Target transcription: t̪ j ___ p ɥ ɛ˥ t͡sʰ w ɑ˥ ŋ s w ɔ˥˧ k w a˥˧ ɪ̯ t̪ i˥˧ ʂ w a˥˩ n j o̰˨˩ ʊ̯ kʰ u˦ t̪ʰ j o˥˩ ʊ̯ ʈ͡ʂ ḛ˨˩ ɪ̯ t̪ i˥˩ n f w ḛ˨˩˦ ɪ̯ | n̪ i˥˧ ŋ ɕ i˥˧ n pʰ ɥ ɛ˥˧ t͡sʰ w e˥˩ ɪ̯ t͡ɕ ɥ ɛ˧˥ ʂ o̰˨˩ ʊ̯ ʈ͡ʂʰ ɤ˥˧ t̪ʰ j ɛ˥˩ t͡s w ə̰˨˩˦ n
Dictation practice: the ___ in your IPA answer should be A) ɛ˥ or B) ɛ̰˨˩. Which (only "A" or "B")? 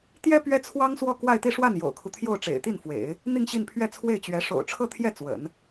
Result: A